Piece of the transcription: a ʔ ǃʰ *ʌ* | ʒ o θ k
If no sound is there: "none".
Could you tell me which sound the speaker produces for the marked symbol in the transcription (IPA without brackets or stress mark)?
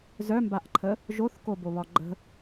ə